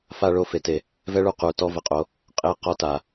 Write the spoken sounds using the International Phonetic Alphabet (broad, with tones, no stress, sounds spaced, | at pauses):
f a˧ ɭ o˧˩ f e˩˧ t e˩˧ | v ɛ˥ ɭ u˧˩ q u˩˧ t ɔ˥˧ v ə˧˩ qʼ o˧ | qʼ e˧˩ q ɔ˥ t a˩˧